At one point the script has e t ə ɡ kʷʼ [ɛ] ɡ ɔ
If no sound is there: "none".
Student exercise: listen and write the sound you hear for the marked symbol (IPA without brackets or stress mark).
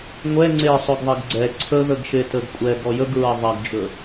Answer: ɛ